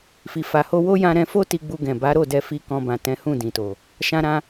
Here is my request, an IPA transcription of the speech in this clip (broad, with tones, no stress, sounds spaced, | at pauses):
f i˨ f a˨ h o˧ w o˦ j ã˧ ɾ ɛ̃˧ f o˦ t i˧ ɡ͡b u˧ ɡ ɛ̃˨ b a˨˦ ɾ o˦˨ d ɛ˧ f i˧ k ɔ̃˧ b ã˨ t ɛ̃˨˦ h ũ˦˨ d ĩ˨ t o˨ | ʃ ã˧ ɾ ã˧